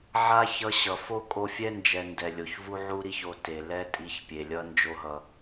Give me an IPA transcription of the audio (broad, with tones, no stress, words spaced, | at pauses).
ʕa˦ çʌ˧ ɕʌ˨ fo˦ kʼo˧fʲɛ˦nd͡ʒɛ˨ ndɛ˨lʲo˨çvu˦ ʕu˦ɾi˦ço˧ te˨lɛ˦tʼi˧ç pʲe˨lʲʌ˦nd͡ʒo˦ɦʌ˧